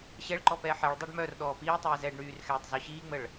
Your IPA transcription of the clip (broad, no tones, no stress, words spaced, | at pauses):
ɕɛɭǃɔpɛː ħɛɭ dˤɛɖmœr ɗɔːpiː tˤiːzɛːɖɳyːrxɛːtˤ zɔɕiːŋ͡məɭ